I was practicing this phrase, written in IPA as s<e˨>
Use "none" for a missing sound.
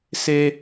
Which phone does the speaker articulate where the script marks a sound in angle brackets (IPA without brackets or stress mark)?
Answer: e˦